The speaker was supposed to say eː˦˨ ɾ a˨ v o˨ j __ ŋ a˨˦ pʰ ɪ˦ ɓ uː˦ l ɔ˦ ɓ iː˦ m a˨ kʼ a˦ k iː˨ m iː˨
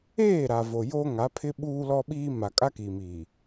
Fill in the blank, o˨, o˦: o˦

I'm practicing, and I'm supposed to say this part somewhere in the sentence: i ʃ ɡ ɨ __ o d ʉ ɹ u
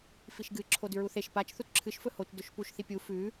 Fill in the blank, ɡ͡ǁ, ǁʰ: ǁʰ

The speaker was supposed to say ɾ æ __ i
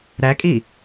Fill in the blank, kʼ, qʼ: kʼ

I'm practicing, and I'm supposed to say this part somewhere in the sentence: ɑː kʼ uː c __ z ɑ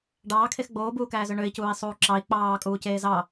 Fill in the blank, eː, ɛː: eː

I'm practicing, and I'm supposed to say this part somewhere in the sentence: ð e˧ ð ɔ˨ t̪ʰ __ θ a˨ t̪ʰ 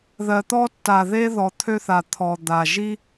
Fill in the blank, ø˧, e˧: ø˧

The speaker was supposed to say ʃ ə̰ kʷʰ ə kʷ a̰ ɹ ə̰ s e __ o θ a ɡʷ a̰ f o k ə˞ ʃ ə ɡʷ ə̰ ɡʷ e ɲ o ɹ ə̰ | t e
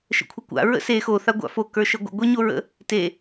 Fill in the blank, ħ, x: x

